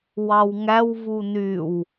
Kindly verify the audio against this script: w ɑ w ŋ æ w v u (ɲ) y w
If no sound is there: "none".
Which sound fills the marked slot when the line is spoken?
n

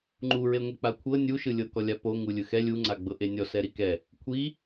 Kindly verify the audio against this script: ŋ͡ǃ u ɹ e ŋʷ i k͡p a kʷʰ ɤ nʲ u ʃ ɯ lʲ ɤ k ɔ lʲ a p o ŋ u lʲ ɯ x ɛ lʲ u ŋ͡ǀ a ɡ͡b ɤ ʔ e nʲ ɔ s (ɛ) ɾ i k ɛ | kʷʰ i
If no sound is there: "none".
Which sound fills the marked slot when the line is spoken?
ɛ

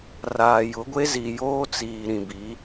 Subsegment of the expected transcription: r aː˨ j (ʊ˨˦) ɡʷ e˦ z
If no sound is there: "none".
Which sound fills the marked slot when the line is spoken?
ʊ˨˦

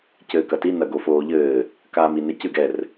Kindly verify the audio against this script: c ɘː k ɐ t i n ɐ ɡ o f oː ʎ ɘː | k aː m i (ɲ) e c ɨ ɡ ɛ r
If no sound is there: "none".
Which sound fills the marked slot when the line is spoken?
n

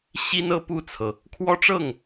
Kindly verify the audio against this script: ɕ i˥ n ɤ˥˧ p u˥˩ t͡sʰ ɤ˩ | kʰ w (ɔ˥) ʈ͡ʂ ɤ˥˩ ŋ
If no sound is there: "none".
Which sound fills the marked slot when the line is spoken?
ɔ˥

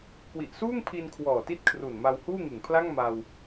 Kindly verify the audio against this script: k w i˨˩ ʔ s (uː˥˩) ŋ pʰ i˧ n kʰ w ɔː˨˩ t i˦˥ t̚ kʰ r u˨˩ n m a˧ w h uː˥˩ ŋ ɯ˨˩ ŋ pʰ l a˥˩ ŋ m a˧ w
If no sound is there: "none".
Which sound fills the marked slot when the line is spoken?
uː˥˩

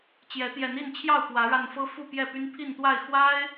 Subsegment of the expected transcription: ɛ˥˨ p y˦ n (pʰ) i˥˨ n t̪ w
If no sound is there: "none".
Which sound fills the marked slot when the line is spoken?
pʰ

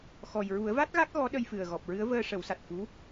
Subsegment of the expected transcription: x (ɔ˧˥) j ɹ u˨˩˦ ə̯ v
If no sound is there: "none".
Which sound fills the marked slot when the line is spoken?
ɔ˨˩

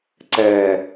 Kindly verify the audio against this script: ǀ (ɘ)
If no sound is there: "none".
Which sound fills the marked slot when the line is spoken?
ɛ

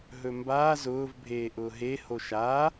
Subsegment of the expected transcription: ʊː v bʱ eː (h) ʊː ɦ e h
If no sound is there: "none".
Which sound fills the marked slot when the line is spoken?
ʔ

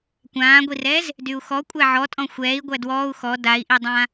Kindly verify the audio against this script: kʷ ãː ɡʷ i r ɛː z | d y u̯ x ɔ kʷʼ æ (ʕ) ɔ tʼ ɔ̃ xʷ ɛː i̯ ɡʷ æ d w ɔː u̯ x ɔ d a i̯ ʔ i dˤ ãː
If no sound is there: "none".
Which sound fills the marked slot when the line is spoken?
ʕ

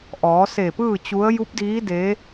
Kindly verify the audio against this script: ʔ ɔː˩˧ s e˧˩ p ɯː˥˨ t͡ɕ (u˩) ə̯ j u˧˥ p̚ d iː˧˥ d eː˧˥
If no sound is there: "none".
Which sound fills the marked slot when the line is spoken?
u˧˥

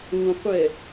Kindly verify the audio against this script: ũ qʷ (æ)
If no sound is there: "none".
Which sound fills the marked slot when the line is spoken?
ɛ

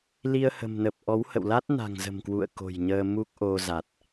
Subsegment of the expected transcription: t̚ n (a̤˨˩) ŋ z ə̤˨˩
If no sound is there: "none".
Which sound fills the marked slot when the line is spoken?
a̤˨˩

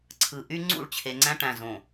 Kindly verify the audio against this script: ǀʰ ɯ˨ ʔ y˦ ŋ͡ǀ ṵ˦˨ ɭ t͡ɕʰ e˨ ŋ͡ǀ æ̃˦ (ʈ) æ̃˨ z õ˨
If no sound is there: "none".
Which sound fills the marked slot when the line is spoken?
ʈ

